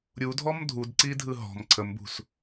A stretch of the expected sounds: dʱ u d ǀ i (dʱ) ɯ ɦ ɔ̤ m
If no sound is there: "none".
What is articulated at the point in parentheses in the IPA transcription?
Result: dʱ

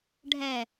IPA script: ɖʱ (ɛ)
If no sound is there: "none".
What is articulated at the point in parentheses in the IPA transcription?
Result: ɛ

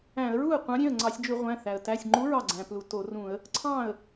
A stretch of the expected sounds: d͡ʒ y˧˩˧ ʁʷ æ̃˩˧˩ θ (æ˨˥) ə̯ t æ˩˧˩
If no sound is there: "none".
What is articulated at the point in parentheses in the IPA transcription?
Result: æ˩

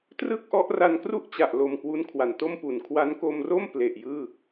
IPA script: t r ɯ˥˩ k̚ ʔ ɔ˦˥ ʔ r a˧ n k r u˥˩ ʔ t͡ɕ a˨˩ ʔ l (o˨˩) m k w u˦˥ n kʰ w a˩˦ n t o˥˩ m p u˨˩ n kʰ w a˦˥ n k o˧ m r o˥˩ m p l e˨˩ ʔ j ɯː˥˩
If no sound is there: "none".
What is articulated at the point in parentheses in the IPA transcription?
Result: o˧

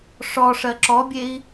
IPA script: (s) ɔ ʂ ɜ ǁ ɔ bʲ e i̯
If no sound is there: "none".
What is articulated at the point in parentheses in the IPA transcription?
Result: ʂ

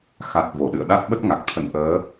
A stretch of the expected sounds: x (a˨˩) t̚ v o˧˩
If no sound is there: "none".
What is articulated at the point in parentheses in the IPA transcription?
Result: a˨˩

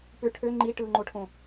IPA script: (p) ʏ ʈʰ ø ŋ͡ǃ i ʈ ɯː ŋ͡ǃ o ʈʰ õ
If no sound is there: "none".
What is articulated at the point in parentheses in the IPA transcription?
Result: p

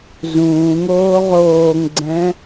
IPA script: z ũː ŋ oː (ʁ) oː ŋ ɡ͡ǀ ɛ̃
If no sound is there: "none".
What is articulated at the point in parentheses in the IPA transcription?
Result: ʁ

